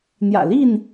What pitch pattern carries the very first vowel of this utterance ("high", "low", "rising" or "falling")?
low